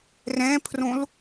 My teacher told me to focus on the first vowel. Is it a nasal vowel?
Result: yes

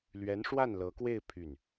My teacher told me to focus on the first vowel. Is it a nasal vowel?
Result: no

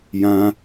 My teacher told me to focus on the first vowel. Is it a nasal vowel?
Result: yes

